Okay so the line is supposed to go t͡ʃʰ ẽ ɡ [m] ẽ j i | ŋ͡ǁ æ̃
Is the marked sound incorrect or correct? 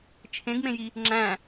correct